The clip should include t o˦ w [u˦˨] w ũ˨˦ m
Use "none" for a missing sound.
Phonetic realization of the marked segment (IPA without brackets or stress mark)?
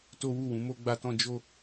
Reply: u˦˨